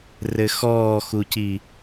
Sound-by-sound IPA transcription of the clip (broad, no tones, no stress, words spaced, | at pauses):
rɘxɔːxuci